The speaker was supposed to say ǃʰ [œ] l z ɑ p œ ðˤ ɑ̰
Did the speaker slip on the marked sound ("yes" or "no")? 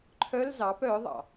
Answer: no